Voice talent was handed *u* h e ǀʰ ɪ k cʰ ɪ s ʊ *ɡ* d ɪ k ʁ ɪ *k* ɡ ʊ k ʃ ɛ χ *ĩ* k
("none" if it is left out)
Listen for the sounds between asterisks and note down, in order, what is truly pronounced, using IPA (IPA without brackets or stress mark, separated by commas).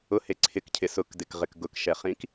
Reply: ʊ, k, k, ĩ